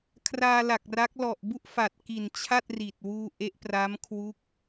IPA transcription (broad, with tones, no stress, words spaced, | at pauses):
kʰraː˧la˨˩k̚ra˦˥k̚ lɔ˨˩ʔbu˥˩ʔ fa˨˩t̚ki˨˩n t͡ɕʰa˥˩t̚ri˨˩t̚wuː˧ ʔe˦˥ʔpra˦˥m kʰwu˦˥k̚